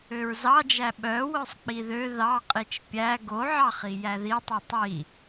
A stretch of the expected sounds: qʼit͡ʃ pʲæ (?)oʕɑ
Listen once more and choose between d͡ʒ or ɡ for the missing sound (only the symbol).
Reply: ɡ